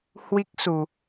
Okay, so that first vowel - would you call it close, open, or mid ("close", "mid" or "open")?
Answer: close